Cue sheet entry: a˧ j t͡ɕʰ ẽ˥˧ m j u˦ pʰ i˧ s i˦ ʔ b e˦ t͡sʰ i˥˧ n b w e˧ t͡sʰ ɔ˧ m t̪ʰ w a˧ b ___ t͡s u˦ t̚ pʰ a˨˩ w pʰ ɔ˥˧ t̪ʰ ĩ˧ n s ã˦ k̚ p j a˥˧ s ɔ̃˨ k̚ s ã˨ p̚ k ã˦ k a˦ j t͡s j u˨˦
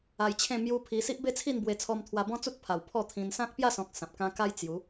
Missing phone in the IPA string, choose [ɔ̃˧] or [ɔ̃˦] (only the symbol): ɔ̃˦